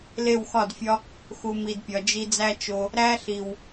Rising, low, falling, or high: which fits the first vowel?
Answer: falling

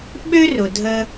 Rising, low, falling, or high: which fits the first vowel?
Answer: high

